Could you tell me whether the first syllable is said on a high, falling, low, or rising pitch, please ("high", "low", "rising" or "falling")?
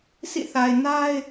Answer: falling